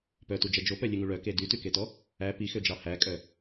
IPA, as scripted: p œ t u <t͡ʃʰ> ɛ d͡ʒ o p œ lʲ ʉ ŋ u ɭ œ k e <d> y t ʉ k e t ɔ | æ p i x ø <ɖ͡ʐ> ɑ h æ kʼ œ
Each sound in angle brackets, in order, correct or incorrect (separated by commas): incorrect, correct, incorrect